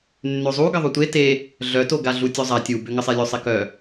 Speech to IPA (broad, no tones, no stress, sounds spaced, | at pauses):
nː ø zˤ u ɡ ə ðˤ u tʷ e t e | ɮ œ t o ɡ a ɮ u tʲ o zˤ a tʲ u b ø ŋ ə sˤ e lʲ o sˤ e k œ